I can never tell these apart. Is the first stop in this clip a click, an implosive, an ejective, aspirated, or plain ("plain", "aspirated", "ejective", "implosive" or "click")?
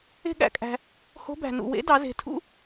implosive